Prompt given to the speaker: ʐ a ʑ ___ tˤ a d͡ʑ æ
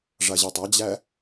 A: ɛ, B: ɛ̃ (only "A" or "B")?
A